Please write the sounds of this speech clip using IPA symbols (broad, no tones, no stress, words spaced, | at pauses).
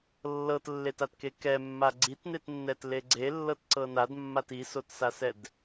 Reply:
lːɤtlːetatke kɛmːa ɡ͡ǀitnetnːɛtle ɡ͡ǀelːɤtǀɤ nadmːat isotsasɛd